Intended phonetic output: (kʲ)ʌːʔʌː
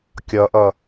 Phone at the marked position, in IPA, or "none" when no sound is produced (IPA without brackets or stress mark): kʲ